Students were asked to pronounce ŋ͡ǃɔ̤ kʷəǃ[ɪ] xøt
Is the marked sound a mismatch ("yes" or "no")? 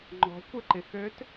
no